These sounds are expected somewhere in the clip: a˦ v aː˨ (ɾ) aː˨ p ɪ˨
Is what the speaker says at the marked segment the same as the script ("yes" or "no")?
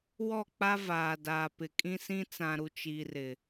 no